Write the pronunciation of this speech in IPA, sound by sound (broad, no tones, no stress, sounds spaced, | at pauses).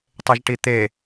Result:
tˤ e ʒ ʈ i t̪ e